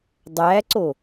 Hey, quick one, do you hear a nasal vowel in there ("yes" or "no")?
no